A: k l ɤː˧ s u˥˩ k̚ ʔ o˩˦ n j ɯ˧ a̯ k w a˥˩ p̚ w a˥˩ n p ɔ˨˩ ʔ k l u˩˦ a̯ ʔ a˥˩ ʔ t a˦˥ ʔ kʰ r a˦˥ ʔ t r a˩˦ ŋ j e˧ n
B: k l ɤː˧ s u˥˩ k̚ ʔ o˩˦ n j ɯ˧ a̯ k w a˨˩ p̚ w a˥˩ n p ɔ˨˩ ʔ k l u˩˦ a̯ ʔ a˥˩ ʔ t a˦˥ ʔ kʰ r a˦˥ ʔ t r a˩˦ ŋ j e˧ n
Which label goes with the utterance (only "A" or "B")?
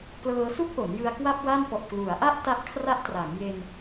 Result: A